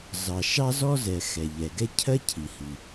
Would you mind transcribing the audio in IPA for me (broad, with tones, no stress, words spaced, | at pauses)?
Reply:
zɑ˩ ʃɑ˥zɔ˥zɛ˩ xɛ˩ʎɛ˩ɡɛ˥ cʰɜ˥ cʰi˩hi˩